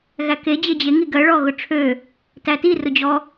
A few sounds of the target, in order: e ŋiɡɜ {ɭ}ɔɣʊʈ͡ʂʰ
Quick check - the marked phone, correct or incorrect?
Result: correct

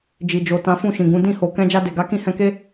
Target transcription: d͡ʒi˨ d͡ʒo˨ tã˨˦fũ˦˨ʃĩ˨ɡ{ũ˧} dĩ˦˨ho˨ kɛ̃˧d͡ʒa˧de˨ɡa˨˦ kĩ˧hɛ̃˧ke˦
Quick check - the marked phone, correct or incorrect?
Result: incorrect: ũ˨˦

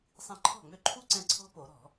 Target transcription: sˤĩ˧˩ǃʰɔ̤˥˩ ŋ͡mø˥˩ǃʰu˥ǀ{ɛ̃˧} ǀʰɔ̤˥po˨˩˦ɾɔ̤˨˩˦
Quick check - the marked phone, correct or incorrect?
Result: correct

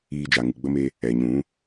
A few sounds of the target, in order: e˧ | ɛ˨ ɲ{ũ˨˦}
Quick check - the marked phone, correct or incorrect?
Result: correct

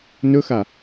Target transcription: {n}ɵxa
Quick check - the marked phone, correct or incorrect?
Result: correct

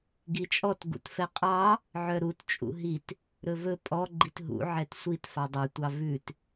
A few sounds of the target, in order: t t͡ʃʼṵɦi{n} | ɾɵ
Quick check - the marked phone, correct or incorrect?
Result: incorrect: t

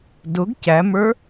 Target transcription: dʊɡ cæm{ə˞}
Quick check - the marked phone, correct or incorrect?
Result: correct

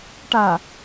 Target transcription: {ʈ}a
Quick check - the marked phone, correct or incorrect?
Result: correct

